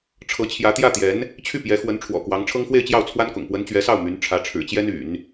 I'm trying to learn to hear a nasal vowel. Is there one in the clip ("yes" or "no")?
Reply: no